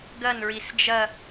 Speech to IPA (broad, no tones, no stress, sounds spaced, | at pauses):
ɡ ɐ n ɹ i s d͡ʒ ɐ